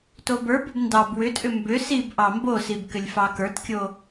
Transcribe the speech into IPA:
t o b ə˞ b ʏ b n d ɑ b w ʏ tʼ ʏ m b ʏ s i b ʔ ɑ m b o s i b k ʏ lʲ f ɑ k ə˞ t kʲ o

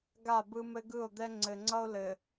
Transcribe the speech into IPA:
ɡ a˦˨ b ɯ˦ m ɘ˦ ɡ ɯ˦˨ o̯ d̪ ɛ˦ ŋ͡ǀ ɘ˨ ŋ͡ǀ ʌ˦ o̯ l ɘ˨

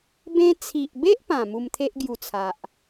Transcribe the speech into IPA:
b ẽ˧ t͡sʰ i˨ ʔ b e˦ ʔ p ã˨˩ m u˧ m t̪ʰ e˦ ʔ ɡ j u˧ t͡sʰ a˨ ʔ

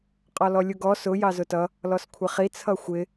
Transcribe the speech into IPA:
qʼ ɒ l ɔ lʲ u ɡ ɔ s ʊ j ɑ z ʊ t ʌ | l ɔ s kʷʰ ɪ χ i t͡sʰ ʌ xʷ ɪ

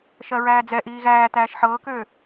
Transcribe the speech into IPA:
ʃ ɜ ɹ æː d͡z ɛ ʔ iː ɣ æː t̪ æː ʃ ħ ɤː k øː

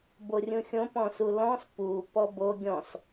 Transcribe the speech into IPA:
b o rʲ ũ xʲ õ p ɔ̃ s u l ɔ̃ s p u p ɔ b o ɡʲ ɔ̃ s

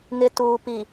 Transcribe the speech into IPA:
ŋ ɪ˨ t uː˨ p i˨

